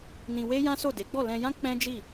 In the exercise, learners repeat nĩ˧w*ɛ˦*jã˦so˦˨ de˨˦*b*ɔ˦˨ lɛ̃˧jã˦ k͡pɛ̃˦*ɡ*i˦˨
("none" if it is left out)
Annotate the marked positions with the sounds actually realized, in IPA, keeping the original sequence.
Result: e˦, ɡ͡b, d͡ʒ

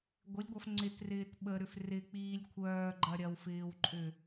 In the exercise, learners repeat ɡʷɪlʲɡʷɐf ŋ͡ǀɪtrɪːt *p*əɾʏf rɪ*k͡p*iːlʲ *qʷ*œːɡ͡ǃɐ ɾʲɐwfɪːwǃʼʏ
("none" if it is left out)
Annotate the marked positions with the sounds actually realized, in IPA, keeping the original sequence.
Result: ɓ, k͡p, kʷʰ

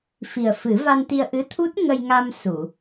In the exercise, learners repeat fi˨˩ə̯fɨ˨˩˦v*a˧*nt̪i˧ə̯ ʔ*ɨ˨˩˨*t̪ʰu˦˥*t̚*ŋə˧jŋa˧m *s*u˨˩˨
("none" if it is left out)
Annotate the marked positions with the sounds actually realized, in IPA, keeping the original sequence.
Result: a˧, ɨ˧˥, t̚, s

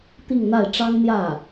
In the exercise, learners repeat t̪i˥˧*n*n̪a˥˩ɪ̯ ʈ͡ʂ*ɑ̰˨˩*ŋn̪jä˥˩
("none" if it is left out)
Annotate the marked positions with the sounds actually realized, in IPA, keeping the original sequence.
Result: ŋ, ɑ˥

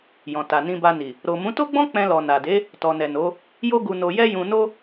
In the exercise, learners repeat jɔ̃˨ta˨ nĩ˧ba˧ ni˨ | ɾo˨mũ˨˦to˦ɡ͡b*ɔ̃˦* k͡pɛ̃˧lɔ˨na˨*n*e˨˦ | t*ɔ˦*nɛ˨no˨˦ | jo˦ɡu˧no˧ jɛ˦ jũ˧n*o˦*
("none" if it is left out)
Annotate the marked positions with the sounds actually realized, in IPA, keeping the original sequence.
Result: ɔ̃˦, d, ɔ˨, o˦

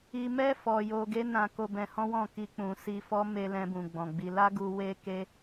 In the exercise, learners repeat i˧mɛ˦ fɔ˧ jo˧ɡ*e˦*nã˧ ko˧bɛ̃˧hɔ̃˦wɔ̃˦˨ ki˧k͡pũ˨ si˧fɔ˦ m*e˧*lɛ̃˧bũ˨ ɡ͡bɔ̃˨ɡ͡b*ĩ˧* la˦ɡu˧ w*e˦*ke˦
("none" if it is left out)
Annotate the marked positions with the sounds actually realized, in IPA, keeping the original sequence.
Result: e˦, e˧, i˧, e˦

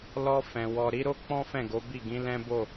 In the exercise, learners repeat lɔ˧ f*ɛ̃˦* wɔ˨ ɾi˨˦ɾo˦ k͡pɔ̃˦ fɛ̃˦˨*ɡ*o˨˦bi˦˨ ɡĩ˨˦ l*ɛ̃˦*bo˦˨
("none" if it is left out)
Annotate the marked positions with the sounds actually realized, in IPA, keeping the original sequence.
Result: ɛ̃˨, ɡ, ɛ̃˦

